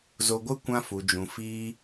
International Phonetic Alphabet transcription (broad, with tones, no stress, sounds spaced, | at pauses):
z o˧ ɡʷ ɨ˦ kʷ ã˧ f u˨ d͡ʒ ũ˨ f iː˦